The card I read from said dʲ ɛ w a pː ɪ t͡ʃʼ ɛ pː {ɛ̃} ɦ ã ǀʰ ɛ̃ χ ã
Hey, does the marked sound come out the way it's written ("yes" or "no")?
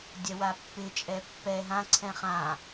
no